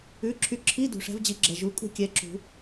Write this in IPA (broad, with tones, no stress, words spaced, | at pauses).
ʉ˩˧˩ǁʰy˨˦ǁʰi˧˥˧ dṳ˩ʂɛ̤˨˦vd͡ʑi˨˩˦ɡ͡ǁɛ˩ ʒu˩˧˩kʼṳ˥˨ kʲɛ˨˦ǁṳ˨˩˦